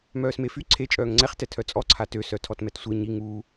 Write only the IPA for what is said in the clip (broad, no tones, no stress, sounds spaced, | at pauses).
m œː s m e f y ǀʰ e t͡ʃʼ œː ŋ ŋ͡ǀ ɛ χ t ɛ tʰ œ t͡sʼ ɔ ǀʰ a t ø s œ tʰ ɔ t m ɛ t sʷ e ɲ i ŋ uː